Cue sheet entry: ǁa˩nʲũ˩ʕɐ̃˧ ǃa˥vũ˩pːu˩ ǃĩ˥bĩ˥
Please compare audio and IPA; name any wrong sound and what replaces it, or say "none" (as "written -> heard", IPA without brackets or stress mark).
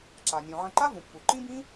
none